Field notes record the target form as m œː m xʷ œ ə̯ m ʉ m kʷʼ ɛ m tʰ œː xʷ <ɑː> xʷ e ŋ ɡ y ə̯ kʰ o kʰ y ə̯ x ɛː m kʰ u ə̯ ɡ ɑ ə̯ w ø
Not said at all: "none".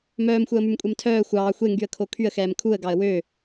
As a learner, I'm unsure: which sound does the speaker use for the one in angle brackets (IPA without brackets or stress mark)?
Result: ɑː